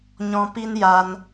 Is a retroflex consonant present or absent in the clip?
absent